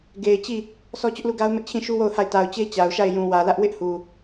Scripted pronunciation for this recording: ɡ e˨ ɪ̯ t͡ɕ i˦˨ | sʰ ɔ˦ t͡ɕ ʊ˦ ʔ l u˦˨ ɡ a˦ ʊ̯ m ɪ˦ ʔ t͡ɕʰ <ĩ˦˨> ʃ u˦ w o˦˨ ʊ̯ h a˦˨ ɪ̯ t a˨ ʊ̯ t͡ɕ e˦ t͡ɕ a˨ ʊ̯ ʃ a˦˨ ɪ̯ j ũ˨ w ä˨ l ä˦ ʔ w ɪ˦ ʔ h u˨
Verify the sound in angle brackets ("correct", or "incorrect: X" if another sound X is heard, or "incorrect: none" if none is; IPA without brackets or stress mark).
correct